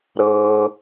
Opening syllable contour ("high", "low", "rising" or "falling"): low